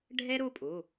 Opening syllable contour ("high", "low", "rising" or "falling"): high